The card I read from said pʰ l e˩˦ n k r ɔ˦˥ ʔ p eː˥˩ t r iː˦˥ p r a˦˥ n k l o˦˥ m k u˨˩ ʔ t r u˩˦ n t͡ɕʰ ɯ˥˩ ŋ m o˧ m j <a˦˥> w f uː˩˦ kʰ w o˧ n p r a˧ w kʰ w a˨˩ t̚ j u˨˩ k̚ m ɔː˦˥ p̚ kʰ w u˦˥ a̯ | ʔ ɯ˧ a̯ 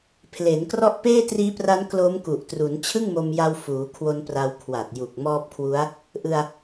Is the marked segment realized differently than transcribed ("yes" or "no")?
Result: yes